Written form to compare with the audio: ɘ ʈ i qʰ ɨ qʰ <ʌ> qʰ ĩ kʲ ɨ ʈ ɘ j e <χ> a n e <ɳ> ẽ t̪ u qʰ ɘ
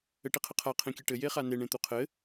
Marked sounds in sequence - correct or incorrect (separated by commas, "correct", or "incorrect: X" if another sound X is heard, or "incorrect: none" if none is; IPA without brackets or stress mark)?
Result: incorrect: a, correct, correct